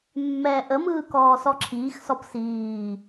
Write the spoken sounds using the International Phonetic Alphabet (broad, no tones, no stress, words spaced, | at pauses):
mːɛːʔəmɯː kɔːsɔǁʰiːxsɔp siː